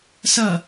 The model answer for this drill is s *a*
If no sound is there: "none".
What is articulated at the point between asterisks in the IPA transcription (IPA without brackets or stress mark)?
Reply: ʌ